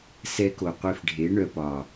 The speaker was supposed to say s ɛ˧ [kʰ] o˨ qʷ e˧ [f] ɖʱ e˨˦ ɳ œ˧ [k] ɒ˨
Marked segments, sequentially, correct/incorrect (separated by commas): incorrect, correct, incorrect